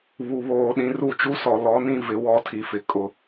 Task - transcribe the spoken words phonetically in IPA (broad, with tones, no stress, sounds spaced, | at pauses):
β u˨ β oː˨ ɗ ĩ˨ r u˦˨ t͡ʃ u˦ s ɔ˨ l ɔ˨˦ n ĩ˦ v ɪ˨ w ɔ˦ tʰ i˨ f ɪ˨ kʼ ʊ˨